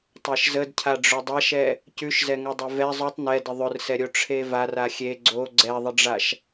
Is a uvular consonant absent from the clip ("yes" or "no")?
yes